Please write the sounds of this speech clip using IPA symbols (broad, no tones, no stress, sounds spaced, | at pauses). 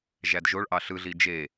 ʒ æ d ʒ o ɭ ʔ ɑ ɬ ɯ ɮ i d͡ʒ e